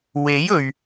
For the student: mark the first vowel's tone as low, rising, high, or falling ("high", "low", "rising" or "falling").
rising